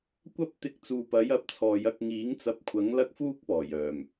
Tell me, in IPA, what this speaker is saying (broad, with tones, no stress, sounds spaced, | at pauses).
kʷ ɐ˥ p̚ t̪ ɪ˧ k̚ t͡s uː˨ p ɐ˨˥ j ɐ˧ p̚ t͡sʰ ɔː˨˧ j ɐ˧ k̚ ŋ iː˨˥ ŋ t͡s ɐ˧ p̚ kʷʰ ɐ˨˥ ŋ l ɐ˥ k̚ f uː˥ k̚ p ɔː˨˩ j œː˨˩ m